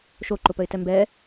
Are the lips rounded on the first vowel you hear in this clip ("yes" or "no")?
yes